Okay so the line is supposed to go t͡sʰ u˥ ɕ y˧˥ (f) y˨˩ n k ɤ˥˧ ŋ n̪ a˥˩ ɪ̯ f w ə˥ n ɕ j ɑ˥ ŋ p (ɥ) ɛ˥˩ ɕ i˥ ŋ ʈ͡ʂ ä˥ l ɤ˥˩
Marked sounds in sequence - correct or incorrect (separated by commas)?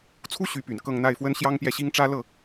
incorrect, incorrect